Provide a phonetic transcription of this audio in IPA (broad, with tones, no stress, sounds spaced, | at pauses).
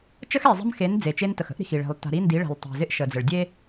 t͡ʃ ə˦ x e˨ zˤ ə̤˦ m x e˨˦ n d͡z e˨ t͡ʃ e˦ n t ə˨ x ə̤˦ ʔ ɾ i̤˨ x i˨ ɭ e̤˨ lˠ t a̤˨ ɾ i˦ n d i˨˦ ɭ e̤˨ lˠ tˤ e̤˨ z ɪ˦ ʔ ʃ ə˨ d͡z ə˨ ɭ dʲ e˦